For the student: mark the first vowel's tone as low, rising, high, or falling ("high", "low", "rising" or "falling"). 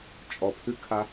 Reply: low